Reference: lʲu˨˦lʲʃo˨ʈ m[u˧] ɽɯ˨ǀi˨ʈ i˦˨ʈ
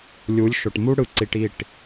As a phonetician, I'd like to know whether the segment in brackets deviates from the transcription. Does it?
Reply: no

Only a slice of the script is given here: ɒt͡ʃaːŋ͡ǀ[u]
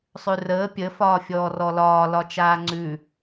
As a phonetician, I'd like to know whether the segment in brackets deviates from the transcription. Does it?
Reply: yes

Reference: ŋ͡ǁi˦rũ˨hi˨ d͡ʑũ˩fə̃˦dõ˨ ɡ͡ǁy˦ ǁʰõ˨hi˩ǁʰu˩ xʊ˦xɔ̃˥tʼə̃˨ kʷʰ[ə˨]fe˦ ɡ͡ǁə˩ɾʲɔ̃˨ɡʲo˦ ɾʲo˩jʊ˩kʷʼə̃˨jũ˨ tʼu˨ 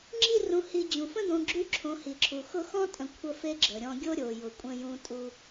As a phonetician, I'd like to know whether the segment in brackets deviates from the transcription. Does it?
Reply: yes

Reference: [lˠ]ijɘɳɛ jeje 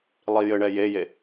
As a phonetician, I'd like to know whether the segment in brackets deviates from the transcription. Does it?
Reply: no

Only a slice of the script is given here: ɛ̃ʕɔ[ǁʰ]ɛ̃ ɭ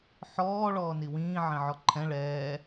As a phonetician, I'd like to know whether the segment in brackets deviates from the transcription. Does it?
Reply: yes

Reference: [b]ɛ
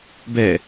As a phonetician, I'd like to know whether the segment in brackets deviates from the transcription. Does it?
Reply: no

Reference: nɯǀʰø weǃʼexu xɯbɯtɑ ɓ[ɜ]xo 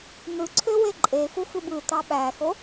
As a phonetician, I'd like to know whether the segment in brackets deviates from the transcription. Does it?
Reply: yes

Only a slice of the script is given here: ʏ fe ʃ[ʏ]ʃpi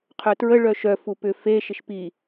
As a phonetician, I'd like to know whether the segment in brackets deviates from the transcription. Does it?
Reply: yes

